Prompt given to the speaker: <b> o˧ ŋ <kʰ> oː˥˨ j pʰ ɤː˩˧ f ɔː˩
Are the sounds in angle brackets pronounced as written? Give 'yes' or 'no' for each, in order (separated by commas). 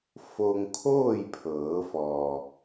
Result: no, yes